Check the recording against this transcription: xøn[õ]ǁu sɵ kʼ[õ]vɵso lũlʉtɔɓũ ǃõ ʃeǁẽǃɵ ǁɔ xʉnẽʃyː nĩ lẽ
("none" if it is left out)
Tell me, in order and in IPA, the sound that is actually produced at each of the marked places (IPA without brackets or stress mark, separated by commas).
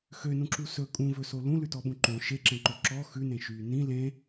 ũ, ũ